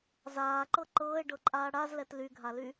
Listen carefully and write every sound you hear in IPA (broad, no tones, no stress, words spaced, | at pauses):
zaːǃɤ ǃɤːe̯ɖɤǃʼaː ɽazlɛt lyɡʱaly